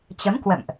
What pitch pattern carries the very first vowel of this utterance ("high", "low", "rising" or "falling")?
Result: rising